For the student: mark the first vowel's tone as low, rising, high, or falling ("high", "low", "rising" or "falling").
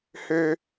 high